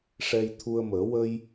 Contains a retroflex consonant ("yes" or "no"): yes